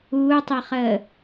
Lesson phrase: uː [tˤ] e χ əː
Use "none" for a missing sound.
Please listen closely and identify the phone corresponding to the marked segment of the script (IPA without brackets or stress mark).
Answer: tˤ